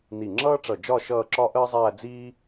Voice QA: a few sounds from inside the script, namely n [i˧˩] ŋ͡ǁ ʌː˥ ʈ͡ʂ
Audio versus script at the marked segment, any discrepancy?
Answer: no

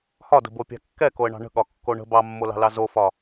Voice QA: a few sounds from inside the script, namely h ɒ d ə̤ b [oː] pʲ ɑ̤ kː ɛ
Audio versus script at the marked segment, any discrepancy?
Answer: yes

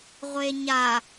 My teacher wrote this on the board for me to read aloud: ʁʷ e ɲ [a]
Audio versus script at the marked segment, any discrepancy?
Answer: no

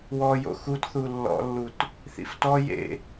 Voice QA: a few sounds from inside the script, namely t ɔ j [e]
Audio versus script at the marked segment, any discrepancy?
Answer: yes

